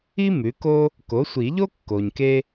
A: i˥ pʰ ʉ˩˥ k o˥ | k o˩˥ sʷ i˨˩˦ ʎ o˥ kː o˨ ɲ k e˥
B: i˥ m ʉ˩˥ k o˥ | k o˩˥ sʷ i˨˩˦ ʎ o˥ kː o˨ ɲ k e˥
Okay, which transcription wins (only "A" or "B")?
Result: B